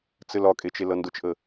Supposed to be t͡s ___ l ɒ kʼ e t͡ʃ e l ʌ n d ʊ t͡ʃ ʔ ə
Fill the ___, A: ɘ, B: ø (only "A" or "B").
A